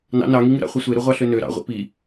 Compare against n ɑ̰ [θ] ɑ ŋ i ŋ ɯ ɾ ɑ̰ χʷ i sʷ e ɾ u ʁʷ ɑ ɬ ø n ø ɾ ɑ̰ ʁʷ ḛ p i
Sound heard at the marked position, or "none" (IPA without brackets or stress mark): n